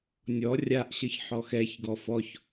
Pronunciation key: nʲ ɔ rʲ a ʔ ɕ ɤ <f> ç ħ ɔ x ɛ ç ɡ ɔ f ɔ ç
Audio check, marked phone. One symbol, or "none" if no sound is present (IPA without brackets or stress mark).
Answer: none